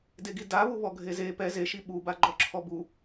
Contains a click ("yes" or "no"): yes